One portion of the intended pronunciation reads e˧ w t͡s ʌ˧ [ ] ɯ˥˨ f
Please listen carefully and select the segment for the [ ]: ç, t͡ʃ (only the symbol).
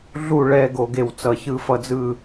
ç